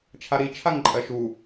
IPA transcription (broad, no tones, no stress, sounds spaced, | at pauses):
t͡ʃʰ a ɾ i t͡ʃʰ a ŋ ǃʼ ɜ ʃ u